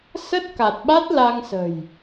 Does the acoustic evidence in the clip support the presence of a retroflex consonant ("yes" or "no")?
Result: no